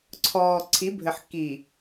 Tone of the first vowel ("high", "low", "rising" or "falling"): low